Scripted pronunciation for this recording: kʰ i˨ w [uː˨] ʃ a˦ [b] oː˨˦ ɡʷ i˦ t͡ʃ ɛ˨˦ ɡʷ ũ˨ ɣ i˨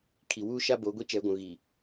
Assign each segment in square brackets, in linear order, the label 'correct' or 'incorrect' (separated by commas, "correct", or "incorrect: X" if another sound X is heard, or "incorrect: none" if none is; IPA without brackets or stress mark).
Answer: incorrect: uː˦, correct